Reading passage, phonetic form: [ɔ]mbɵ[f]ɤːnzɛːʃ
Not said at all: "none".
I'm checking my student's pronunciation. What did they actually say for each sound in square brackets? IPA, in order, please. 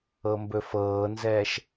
ɤ, f

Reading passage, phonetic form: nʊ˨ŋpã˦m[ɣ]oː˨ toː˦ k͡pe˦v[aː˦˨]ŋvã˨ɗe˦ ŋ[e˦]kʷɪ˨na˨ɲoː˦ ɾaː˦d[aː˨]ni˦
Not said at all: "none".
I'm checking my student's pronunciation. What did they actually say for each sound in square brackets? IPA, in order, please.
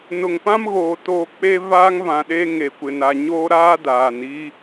ɣ, aː˦, e˨, aː˨

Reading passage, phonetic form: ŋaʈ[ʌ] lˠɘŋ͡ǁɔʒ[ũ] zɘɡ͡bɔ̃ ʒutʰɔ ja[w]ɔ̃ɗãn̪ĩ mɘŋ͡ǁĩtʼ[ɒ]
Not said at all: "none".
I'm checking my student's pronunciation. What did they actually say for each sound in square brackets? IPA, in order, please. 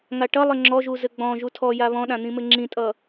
ʌ, u, β, ʌ

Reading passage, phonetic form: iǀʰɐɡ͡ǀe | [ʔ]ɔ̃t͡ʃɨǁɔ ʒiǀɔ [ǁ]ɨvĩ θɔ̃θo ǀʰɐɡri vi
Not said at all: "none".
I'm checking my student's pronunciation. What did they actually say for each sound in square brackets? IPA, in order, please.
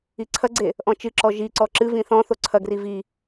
ʔ, ǁ

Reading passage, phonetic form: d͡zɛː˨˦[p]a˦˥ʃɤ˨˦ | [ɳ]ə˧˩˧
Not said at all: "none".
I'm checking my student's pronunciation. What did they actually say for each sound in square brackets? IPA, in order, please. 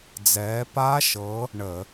p, ɳ

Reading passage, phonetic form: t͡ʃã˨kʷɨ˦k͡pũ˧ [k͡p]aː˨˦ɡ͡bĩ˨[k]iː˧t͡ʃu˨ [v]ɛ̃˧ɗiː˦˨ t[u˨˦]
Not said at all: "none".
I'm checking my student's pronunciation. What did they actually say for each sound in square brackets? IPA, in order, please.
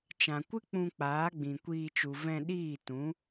k͡p, kʷ, v, ũ˨˦

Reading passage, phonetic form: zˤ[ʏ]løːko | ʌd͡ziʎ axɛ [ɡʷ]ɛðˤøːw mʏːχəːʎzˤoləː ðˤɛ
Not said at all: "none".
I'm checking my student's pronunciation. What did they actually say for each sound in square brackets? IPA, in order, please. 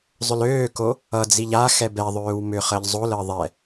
ʏ, b

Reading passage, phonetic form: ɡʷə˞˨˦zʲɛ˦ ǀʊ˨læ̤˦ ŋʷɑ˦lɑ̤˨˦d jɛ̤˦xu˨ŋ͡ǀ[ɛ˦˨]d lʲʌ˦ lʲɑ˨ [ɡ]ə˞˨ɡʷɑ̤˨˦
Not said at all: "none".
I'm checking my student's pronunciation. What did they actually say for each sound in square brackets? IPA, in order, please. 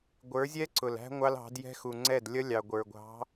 ɛ˦˨, ɡʷ

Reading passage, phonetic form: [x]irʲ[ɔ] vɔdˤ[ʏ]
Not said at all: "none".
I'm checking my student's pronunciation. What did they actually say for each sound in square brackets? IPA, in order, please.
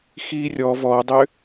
x, ɔ, ʏ

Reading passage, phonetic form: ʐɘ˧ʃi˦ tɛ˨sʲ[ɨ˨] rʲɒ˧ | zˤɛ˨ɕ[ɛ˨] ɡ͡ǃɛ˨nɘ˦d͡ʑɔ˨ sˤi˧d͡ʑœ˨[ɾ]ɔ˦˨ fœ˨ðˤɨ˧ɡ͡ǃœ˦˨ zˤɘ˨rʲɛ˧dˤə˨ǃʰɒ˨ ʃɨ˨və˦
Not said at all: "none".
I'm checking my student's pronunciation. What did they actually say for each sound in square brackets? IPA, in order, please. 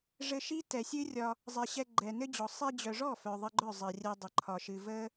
ɨ˦, ɛ˧, ʐ

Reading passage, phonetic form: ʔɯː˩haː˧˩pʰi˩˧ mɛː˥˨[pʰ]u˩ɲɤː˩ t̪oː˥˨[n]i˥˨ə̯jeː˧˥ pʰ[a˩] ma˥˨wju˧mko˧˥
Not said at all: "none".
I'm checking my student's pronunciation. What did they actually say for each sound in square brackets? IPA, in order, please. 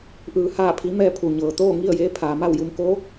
pʰ, ŋ, aː˩

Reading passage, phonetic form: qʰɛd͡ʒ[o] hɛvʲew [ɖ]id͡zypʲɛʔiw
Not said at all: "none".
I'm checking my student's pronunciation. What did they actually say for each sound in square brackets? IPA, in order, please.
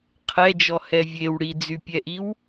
ɔ, ɽ

